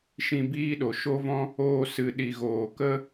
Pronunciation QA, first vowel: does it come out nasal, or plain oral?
nasal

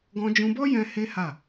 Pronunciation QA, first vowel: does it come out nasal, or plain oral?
nasal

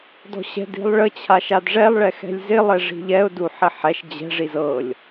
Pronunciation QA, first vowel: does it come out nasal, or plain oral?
oral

